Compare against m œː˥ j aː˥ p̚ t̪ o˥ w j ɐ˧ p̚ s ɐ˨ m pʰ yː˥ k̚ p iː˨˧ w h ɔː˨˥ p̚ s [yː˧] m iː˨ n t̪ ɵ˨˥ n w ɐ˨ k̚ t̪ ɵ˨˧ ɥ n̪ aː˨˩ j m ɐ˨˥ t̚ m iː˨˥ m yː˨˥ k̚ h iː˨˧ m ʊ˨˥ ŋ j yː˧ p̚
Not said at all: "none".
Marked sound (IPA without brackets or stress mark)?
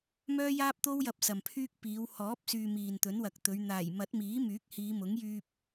yː˧